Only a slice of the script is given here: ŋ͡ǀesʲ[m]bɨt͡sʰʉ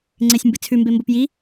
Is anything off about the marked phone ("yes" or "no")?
no